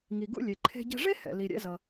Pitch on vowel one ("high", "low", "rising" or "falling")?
low